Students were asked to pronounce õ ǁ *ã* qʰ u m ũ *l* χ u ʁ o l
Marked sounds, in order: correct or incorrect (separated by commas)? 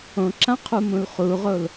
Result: correct, correct